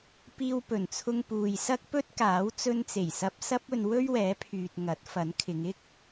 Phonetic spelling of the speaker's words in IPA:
piː˧wpɵ˨˩nt͡sʰʊ˧ŋ puː˨jsɐ˥k̚pɵ˥t̚ kaː˨˥w t͡sɵ˧nt͡se˨˩jsɐ˧p̚ sɐ˥p̚ɵ˧n wɵ˥ɥwɛː˨˥pʰyː˨t̚ ŋɐ˨˥t̚fɐ˨˥nkʰɪ˨˧ŋ ɪ˥k̚

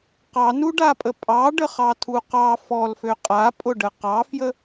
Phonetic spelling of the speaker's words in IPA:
qɑnuɖapʼə pʼɑɖəχɑtʰu qɑ fɔlfø qʼapʼʊɖə qɑfjə

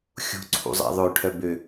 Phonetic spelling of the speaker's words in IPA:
xʲṳǀʰṵzˤɛ̰ ðˤɵʈʰœ bø

